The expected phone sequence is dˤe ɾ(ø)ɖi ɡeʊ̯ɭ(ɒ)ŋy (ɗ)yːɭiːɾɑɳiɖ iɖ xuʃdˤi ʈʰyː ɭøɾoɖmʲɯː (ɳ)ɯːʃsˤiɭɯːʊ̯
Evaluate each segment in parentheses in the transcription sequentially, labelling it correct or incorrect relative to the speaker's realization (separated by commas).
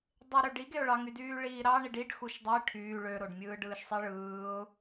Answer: correct, incorrect, incorrect, incorrect